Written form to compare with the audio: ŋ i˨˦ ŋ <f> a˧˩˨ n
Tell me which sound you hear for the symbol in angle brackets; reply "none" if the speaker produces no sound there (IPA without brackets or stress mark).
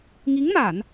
m